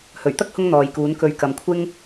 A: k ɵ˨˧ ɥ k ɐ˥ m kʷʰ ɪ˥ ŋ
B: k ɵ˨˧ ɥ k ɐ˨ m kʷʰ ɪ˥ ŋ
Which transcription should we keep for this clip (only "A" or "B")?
B